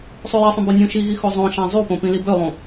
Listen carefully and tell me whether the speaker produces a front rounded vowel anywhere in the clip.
yes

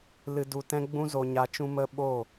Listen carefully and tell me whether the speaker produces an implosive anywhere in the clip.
yes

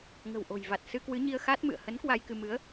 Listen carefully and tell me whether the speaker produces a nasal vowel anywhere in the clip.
no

